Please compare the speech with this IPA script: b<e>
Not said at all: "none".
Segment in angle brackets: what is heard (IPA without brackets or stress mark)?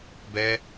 ɛ